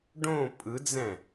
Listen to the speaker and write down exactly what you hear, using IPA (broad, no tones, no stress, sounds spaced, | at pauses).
ɖ õ pʼ ɯ d͡z ɛ̃